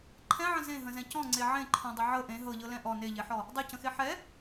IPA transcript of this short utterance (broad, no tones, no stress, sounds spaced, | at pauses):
ǃʰ ɛ̃ ʕ ə̃ z ẽ ɦ ə̃ z ɛ̃ c ɔ̃ ŋ͡ǀ e ʕ ẽ ǃʰ ɔ̃ dˤ ə ʕ ɤ ʔ ẽ ɦ ɤ ʎ ɤ l ɛ̃ ʔ ɔ n e ʎ e ħ ɔ | dˤ e c ə̃ x e ħ ɛ